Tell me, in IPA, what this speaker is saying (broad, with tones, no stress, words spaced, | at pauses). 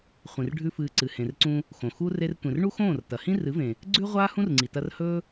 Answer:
χʷĩ˨rɖʱʉ˦fɨː˧ ǀɨ˨hẽ˨rǀũ˧ | xõ˨xu˦ re˧rtʷẽ˨rɳu˦ xõː˦˨rtɐ˨ hĩ˦rɨ˨˦vẽ˨ | ɡ͡ǀʉ˦ʁʷaː˦ hũ˦rŋ͡ǀi˨tɐ˧r hɵ˦